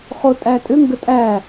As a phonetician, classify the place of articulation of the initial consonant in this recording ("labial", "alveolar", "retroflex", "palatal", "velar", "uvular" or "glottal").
uvular